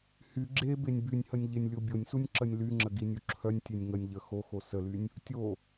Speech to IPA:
h y ɡ͡ǁ e b e nʲ b y nʲ h ə nʲ ʎ e nʲ lʲ o bʲ o nʲ s u nʲ ǁ ə nʲ l y ŋ͡ǁ ə ɡ i nʲ u ǁʰ œ nʲ tʲ e nʲ ŋ ə nʲ ʎ ə x o x o s ə l y nʲ | tʲ o

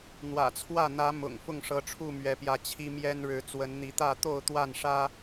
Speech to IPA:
n̪ w ä̰˨˩ t͡sʰ w ä˥˨ n̪ ä˨˦ m ʊ̰˨˩ ŋ f ʊ˥˨ ŋ ʂ ɤ˨˦ ʈ͡ʂʰ u˥˨ m ɥ ɛ˨˦ p j ä˨˦ t͡ɕʰ i˦ m j ɛ˦ n ɻ ɻ̩˨˦ t͡s w ə˨˦ n n̪ i˨˦ t̪ ä˥˨ t̪ o˥˨ ʊ̯ t̪ w a˥˨ n ʂ ä˦

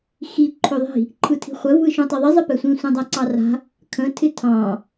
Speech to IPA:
x i ǃʰ ø ðˤ i̤ | ǃʰ ɯ tʰ i̤ χʷ ə v ɯ ʃ ũ tˤ e ðˤ i zˤ ə p ɛ sʷ ĩ sʷ ɛ̃ dˤ a ǀ ɑ r a̤ | kʰ ə̃ tʰ ɪ tʰ ɑ̃

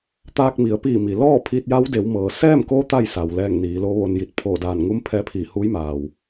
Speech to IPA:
t̪ aː˧ k̚ m i˩˧ ə̯ p iː˧˩ m i˩ l ɔː˥˨ pʰ iː˧ t̚ j a˧˥ w d e˩˧ w m ɤː˩ s ɛː˥˨ m k o˧˥ t̪ a˥˨ j s a˩ w l ɛː˧˩ ŋ n iː˩˧ l o˧˥ ʋ o˧ n j i˧ t̚ pʰ oː˧˩ d aː˧˩ n ŋ u˧˥ m pʰ ɛː˧˥ pʰ iː˧˩ h uː˧˥ j m aː˩ w

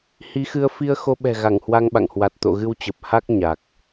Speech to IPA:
h i˨˦ x ɨ˧ ə̯ f i˧ ə̯ x o˧ ɓ ɛ̤˨˩ ɣ a˧˩ ŋ h w a˧ ŋ ɓ a̰˧˨ ŋ h w a˨˩ t̚ t̪ o̰˧˨ ɣ ɨ˧ w t͡ɕ ə˨˩ p̚ h a˦˥ k̚ ɲ a˨˩ k̚

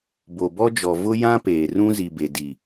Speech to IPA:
b o˨ b ɔ˦ d͡ʒ ɔ˨ v ʊ˦ j ã˦ p eː˨ r ũ˦ z i˨ b e˨ d i˨

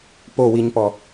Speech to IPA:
p o w i ɲ p ɔ

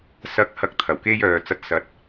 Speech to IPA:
s ɐ˨˥ k̚ h ɐ˨˥ k̚ t̪ʰ ɐ˨˩ w k e˧ j œː˨ t͡s ɐ˨˥ t̚ s ɐ˨˥ t̚

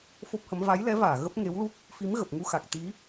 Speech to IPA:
f o˦˥ p̚ h ə˨˦ m v a˨˦ j l ɛ˨˦ v aː˧˩ ɣ ə˦˥ p̚ ŋ e˨˦ w l u˦˥ k̚ | f i˨˦ m ɣ ə˨˩ p̚ ŋ u˧ x a˨˩ k̚ t̪ i˨˦

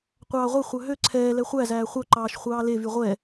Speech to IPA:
qʷ ɑː ʁʷ e χʷ œ ɦ ø ǀʰ ɛː l ɛ χʷ æ z æː χʷ œ ǃ ɑː ʃ χʷ ɑː l e v y ʁʷ ɛ

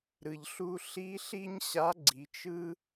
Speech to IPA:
ɾ ɯ˩ ʎ ɬ u˧ ɬ i˧˥ ɬ i˥ ɲ ɕ a˧˥ ɡ͡ǀ i˩˧ t͡ʃ ɯ˥

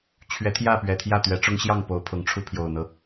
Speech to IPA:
t͡ɕʰ ɥ ɛ˨˦ t̪ʰ j ä˥˨ p ɥ ɛ˨˩ t̪ʰ j ä˥˨ t̪ ɥ ɛ˨˦ ʈ͡ʂ ʊ˦ ŋ ɕ j ɑ˥˨ ŋ p o˨˦ ʊ̯ pʰ ʊ˨˩ ŋ ʈ͡ʂʰ u˦ pʰ j o˨˩ ʊ̯ n̪ ɤ˦

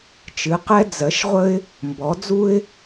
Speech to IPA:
t͡ʃ ɨ˧˥ q ɛ˥ d͡z ɜ˧˥ ʃ ʁʷ ə˥ ɪ̯ | m b ɔ˧˥ d͡z u˥ ɪ̯

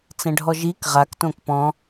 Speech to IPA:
t͡s ɛ̃ ɖʱ ɔ ʒ i k ʁ a k t õ k p ɔ̃

